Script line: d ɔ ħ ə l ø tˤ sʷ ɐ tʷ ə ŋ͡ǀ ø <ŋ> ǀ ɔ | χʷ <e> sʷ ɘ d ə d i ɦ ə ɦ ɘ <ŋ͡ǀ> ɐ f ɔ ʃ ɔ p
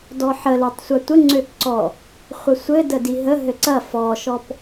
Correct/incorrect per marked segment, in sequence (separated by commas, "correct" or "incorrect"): incorrect, incorrect, incorrect